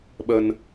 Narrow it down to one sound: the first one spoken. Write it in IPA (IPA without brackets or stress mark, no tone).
ɓ